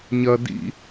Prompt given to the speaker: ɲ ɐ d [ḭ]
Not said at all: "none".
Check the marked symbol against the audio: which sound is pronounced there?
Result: ḭ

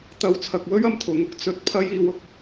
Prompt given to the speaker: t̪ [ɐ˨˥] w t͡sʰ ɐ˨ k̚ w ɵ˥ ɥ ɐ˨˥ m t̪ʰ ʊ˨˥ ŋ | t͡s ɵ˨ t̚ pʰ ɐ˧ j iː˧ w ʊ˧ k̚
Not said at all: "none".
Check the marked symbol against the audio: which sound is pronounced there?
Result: ɐ˨˥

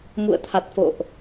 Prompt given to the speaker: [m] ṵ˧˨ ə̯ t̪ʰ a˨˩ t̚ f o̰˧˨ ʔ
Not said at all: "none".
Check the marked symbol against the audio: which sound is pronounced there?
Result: m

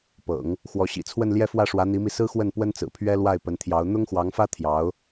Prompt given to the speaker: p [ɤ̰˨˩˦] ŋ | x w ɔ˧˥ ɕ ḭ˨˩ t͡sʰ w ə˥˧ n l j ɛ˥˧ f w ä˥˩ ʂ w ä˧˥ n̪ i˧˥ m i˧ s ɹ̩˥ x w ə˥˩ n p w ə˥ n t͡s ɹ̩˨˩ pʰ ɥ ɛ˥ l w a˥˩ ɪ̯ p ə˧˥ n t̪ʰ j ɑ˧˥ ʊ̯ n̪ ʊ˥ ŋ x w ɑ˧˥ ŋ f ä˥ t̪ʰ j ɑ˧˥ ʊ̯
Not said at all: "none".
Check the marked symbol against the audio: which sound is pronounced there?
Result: ɤ̰˨˩˦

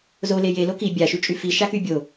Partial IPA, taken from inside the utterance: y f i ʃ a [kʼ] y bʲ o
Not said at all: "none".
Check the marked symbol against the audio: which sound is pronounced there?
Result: k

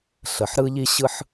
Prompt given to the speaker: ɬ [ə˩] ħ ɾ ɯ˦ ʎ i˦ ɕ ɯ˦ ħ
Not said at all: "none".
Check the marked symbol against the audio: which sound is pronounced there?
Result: ə˩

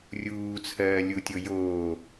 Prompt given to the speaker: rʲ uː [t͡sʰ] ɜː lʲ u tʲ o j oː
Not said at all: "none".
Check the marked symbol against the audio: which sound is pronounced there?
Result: t͡sʰ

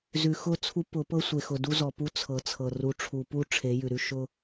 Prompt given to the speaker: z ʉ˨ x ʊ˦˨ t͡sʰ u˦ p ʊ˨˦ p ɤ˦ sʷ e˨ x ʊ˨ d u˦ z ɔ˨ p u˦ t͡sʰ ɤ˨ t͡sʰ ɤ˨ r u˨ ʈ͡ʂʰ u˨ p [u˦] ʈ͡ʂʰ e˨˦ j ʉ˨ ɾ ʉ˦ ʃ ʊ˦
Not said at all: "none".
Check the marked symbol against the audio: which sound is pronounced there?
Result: u˦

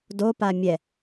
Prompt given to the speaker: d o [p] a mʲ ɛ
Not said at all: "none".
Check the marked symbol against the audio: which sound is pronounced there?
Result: p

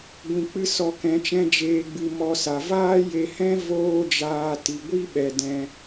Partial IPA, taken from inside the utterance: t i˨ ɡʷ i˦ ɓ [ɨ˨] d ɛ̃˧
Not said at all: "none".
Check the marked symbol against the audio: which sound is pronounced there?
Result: ɛ˨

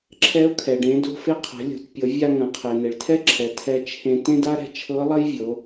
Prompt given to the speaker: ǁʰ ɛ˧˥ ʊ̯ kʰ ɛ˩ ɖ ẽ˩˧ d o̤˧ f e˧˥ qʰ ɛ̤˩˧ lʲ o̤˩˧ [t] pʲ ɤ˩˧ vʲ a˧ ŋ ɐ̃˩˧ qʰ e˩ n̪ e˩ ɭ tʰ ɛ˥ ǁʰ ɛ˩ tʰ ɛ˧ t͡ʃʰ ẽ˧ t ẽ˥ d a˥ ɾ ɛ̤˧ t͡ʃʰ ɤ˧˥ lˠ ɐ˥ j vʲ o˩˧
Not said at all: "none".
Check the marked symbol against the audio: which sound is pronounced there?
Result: t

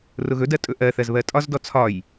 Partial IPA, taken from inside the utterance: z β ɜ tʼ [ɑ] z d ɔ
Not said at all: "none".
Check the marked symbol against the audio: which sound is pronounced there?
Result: ɒ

